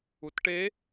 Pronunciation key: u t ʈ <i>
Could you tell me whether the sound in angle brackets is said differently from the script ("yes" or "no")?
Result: yes